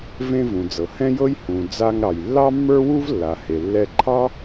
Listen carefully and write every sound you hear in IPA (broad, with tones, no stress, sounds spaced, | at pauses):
v ẽ˧ v ũ˩ d͡z ɤ˩ h ɛ̃˥ j ɤ˥ j h ũ˩ d͡z a˧ ŋ ɾ ɑ˩ j lː ɑ˥ mː ə˞˥ w u˥ v lː a˩ h e˩ lː ɛ˧ ǃʰ ɑ˥